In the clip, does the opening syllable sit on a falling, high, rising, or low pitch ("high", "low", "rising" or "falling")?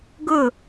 falling